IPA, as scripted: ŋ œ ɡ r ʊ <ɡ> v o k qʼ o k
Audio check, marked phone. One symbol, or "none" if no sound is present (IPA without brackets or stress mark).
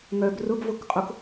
ɡ